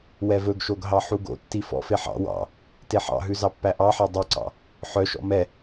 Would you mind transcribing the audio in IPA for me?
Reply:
w ɛ v ɵ ɡ ʃ o ɡ ɦ ɑ ħ u ɡ o̰ tː i f ɔ̰ f e ħ ɑ̰ w ɑ̰ | t e ħ ɑ̰ ɦ ʉ z ɑ pː æ ʔ ɑ ħ ɛ dˤ ʉ ǀ ɑ̰ | ħ œ ʃ ɔ̰ m ɛ

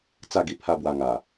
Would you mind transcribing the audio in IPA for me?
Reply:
t͡s a˥˧ ɡ i˧ pʰ a˦ b w a˧ ŋ a˨˩

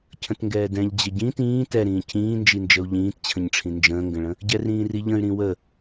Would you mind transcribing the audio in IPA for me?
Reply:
cʰ ə̃ t ŋ ɡ ɛː d ɛ̃ ʎ d͡ʑ ə ɟ ĩ t ĩː t ɛ ɾ ĩː cʰ ĩː n d͡ʒ i n d͡ʒ ə u̯ ʎ ĩː t t͡ɕʰ ə̃ ɲ ʈ͡ʂʰ ĩ n d͡ʒ ə̃ː ŋ ɡ ə̃ ɭ ə̃ | ɟ ɛ r ĩː r i ʎ ə̃ y̯ ɾ ĩ w ə

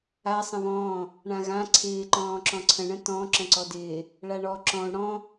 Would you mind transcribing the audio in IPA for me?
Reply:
a sˤ ə̃ β ɔ̃ː | ɳ ã ɣ ã ǀʰ ɪː ǃ ɔ̃ː ǁ ɔ̃ ǀʰ ə̃ ɳ ə̃ t ɔ̃ ǁ ə̃ ǀ ɔ d ɪː | ɭ a ɳ ɔ ǁ ɔ̃ u̯ ɽ ɔ̃

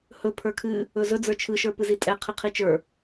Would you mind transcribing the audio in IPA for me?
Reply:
h ɵ pʰ ə˞ kʰ ɨ | ɵ z ɵ d͡z ə˞ t͡ʃʰ ɯ ʃ ə˞ p ɨ z i tʼ ɛ qʰ ɨ qʰ i t͡ʃ ə˞

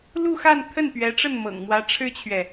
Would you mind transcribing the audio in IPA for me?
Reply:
l u˥˧ x a˥˧ n t̪ʰ ə˥˩ n p ɥ ɛ˧˥ ʈ͡ʂ ə˥˩ n m ɤ̰˨˩ ŋ m w ä˧˥ ʈ͡ʂʰ ɻ̩˥ t͡ɕʰ ɥ ɛ˨

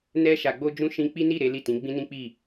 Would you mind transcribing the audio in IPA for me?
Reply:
n ɛ˧ ʃ a˨ ɡ͡b o˧ d͡ʒ ũ˧ ʃ ĩ˧ k͡p i˦ n i˦˨ ɾ e˨˦ l i˦˨ t ĩ˨˦ ɡ͡b ĩ˦ n ĩ˦ k͡p i˦˨

